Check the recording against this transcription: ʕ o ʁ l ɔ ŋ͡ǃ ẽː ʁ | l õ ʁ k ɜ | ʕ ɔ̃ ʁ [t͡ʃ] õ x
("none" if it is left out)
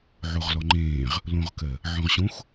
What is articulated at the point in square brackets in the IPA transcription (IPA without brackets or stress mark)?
ɕ